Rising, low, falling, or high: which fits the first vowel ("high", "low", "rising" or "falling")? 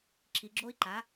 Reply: low